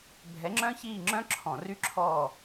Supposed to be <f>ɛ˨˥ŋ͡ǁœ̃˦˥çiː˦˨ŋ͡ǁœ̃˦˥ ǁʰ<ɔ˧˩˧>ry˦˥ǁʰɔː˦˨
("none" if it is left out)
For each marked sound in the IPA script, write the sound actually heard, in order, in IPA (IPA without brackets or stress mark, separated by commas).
bʱ, ɔ̃˧˩˧